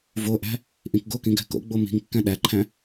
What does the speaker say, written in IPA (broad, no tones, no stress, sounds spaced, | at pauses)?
v o ʔ æ̤ | ʔ ĩ k ɡ o k ĩ ɡ æ̤ k o̰ ɡ͡b o m i̤ ŋ kː æ̃ ɗ æ ǃʰ æ̃